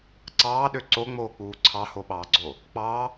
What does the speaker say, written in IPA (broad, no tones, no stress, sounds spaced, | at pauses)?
ǀ ɑː ɗ ø ǀ o ŋ͡m oː k͡p uː ǀʰ ɑ h o ɓ ɑː ɡ͡ǀ o | k͡p ɑ